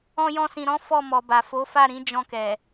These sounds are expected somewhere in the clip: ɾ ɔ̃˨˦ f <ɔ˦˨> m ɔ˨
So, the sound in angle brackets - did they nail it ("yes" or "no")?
yes